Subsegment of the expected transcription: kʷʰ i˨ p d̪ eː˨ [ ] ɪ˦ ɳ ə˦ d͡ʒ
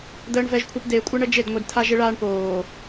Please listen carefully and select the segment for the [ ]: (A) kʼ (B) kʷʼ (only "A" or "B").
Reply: B